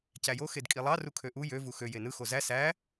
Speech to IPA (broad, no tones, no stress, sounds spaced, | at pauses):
c æ j o x e d kʼ i lˠ ɑ r u kʰ ø ʔ u j ø v u x ø j e n ɯ x o z æ s æ